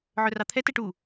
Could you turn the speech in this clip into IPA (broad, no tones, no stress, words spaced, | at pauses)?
ʕœrɑt̪ʰɛ tɛʈu